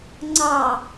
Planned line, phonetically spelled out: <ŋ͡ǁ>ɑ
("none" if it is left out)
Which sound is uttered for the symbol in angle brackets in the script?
ŋ͡ǀ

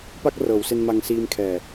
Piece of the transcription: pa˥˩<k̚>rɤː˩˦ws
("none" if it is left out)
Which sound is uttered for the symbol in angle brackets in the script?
k̚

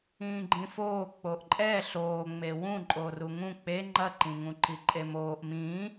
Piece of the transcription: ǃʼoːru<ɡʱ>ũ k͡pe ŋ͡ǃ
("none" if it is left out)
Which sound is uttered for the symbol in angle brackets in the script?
ŋ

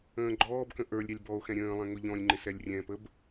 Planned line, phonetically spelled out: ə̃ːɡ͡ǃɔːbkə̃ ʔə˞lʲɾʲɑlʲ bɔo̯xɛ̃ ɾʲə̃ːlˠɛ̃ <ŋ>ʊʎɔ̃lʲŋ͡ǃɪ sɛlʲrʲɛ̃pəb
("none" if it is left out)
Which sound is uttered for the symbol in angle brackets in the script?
ŋ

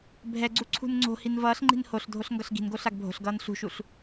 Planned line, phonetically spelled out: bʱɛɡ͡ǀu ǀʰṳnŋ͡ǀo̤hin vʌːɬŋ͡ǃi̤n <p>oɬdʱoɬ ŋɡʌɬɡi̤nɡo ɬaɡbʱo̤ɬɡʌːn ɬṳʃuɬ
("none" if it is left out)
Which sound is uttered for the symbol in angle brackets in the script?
h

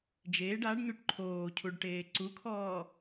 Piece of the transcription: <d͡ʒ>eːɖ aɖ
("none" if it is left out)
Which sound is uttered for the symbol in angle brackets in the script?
d͡ʒ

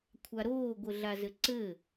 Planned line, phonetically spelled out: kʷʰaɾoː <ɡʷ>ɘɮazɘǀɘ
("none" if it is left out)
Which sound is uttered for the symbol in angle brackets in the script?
ɡʷ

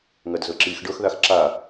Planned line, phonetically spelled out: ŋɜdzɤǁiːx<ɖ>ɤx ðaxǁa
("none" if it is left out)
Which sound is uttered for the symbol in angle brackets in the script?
ɖ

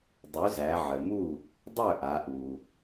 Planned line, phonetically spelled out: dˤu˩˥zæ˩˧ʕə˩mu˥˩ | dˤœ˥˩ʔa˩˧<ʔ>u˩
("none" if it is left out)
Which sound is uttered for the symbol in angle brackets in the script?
ʔ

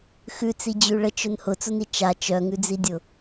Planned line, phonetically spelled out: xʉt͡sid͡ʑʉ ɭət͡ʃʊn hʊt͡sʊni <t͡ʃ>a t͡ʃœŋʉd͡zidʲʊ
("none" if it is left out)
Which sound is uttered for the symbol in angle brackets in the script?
t͡ʃ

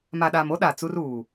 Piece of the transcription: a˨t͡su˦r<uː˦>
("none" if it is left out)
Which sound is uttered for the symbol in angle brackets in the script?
uː˨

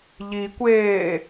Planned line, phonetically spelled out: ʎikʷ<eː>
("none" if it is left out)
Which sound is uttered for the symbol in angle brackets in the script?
eː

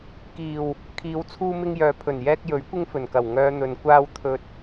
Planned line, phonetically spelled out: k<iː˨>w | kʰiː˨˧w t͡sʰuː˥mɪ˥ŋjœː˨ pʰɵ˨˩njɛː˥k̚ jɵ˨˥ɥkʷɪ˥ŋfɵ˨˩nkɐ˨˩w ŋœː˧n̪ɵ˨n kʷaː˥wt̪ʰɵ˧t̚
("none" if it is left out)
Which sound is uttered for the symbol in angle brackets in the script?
iː˨˩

